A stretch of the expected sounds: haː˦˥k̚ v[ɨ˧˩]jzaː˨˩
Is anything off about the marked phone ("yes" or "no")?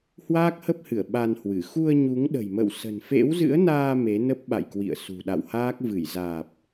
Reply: no